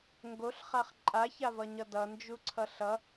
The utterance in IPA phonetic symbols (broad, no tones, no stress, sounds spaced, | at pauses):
ŋ ɡ o ɬ χ a χ ǃʼ a ç a v ʌ ɲ ʌ d ʌ n d͡ʒ u ǀʰ ʌ ɬ ʌ